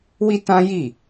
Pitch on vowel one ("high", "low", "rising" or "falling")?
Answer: high